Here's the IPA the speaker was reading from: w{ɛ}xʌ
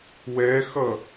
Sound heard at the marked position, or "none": ɛ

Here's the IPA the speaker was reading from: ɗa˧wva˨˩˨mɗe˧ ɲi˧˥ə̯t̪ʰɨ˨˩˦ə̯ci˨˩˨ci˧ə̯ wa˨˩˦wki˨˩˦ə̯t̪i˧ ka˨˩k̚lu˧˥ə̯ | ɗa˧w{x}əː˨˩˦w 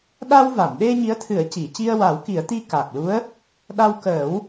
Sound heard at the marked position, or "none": k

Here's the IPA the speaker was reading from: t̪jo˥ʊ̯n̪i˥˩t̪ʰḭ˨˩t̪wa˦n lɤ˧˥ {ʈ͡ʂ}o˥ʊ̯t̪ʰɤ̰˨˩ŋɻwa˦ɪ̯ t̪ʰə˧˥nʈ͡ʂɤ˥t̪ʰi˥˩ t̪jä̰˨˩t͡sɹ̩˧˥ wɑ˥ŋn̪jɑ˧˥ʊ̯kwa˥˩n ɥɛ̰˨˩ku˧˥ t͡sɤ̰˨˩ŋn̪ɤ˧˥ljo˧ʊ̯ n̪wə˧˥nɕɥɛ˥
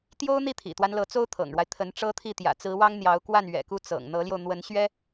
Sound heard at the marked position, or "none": t͡s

